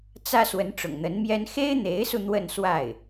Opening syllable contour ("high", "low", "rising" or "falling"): high